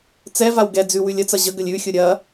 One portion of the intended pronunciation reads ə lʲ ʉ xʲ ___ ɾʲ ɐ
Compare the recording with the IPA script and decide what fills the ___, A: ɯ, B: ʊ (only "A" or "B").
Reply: B